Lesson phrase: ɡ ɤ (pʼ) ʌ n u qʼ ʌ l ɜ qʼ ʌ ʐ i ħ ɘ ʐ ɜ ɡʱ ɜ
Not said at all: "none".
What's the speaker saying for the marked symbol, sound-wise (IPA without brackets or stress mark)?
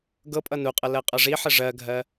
pʼ